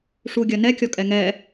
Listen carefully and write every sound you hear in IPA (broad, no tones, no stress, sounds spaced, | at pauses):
ʂ u ɡʲ ɐ n ɛ kʲ ɔ kʼ ɛ ŋ ɛ